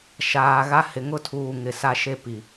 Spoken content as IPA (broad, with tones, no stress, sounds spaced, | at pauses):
ʃ aː˨ ɣ a˦ h ɪ˨ ŋ ʊ˦ tʰ uː˨ ŋ ɪ˨ s a˦ ʃ e˦ p i˨